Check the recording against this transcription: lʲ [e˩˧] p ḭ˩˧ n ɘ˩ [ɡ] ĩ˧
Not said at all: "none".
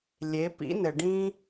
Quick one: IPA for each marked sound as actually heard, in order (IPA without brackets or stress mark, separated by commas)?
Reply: e˩˧, ɖ